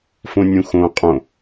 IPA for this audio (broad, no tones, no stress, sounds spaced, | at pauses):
f õ nʲ ũ x õ qʼ õ